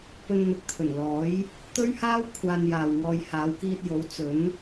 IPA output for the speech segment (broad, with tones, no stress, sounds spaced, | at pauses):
p ɵ˧ n n̪ ɪ˨ k̚ t̪ʰ ɵ˨˩ n l ɔː˨˥ j | t̪ ɵ˥ ɥ h aː˥ w kʷʰ aː˧ n j aː˨ w ŋ ɔː˧ j h aː˨˧ w k iː˧ t̚ j o˨˥ w t͡s ɵ˨˥ n